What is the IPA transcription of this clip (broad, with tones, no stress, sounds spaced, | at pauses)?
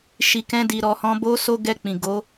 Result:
ʃ i˨ k ɛ̃˧ d i˨ ɾ ɔ˨ h ɔ̃˧ b o˦ s o˦ ɡ ɛ˧ k͡p ĩ˨ ɡ o˨˦